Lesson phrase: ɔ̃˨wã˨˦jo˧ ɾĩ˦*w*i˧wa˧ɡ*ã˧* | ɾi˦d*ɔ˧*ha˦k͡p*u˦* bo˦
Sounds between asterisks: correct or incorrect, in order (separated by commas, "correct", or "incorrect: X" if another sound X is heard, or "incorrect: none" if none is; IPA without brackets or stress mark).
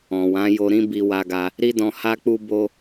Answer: incorrect: b, incorrect: a˧, incorrect: ɔ̃˧, correct